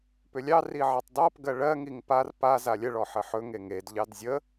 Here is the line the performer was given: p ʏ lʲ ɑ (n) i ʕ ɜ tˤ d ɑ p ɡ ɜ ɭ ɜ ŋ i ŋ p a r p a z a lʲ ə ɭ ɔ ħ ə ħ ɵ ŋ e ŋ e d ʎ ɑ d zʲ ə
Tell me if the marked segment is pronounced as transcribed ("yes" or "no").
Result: no